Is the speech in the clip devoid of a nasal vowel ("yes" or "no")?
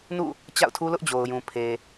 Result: no